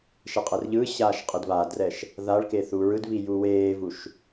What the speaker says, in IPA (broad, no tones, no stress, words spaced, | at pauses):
ʃɛqʼɛrʎɯːɕaːʃ qʼedβaːdrɛʃ | ðaɭke θuːɹɯdβi juweːvuʃ